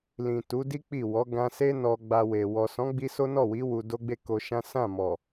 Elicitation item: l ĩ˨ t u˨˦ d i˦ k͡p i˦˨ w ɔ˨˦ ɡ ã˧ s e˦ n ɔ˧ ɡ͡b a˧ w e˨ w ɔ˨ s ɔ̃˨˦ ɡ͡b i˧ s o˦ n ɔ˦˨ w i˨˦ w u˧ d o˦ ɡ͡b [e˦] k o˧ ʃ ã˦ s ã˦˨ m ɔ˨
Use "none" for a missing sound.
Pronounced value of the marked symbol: e˦˨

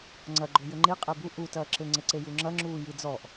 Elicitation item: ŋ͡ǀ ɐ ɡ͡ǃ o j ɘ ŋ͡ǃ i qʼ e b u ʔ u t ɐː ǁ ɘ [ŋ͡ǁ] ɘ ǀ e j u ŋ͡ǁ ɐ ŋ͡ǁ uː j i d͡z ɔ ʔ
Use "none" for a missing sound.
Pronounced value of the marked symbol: ŋ͡ǀ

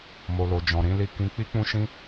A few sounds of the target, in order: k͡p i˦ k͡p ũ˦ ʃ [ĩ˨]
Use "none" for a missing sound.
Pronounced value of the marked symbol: ĩ˦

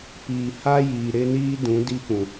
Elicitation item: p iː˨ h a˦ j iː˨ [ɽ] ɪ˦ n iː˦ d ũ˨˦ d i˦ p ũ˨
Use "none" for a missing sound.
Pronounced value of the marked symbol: ɾ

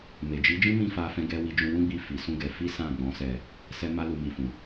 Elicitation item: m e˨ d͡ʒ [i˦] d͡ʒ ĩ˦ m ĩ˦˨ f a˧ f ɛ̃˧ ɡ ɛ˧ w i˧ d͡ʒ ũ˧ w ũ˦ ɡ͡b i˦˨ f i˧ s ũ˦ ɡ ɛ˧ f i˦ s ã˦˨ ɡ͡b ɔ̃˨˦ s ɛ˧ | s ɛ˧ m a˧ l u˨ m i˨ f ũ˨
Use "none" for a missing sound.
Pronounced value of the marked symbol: i˨˦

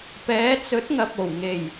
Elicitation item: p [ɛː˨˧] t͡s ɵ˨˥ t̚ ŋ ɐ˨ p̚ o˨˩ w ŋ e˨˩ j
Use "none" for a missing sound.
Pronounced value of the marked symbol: ɛː˨˧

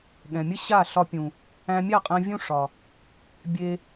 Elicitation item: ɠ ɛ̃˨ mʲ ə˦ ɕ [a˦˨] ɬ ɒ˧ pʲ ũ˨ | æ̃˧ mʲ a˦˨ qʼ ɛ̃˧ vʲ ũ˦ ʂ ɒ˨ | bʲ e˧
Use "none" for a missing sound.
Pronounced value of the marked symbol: a˦˨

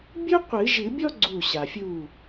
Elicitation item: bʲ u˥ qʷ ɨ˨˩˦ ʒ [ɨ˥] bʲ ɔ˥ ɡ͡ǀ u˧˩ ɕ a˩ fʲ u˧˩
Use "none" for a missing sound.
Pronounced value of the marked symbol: ɨ˨˩˦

